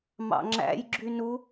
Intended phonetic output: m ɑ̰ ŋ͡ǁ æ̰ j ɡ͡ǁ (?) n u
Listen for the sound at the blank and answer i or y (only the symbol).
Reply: y